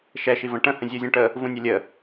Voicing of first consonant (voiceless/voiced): voiceless